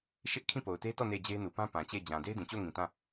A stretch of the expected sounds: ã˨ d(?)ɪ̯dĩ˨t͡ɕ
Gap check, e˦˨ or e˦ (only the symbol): e˦